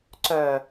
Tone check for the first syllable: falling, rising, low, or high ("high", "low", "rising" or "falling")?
low